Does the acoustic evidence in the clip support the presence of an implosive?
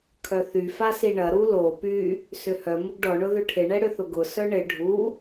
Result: no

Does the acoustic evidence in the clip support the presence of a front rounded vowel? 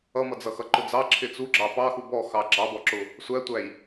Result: no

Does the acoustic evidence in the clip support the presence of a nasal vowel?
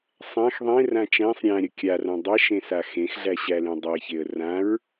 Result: yes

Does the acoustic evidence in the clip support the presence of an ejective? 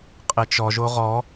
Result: yes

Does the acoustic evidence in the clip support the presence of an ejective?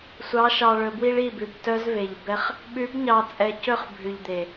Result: yes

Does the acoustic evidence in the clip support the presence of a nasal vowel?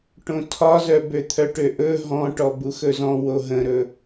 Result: yes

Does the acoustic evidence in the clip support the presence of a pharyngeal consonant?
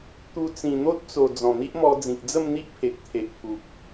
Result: no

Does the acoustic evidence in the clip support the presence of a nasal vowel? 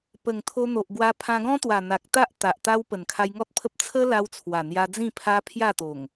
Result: yes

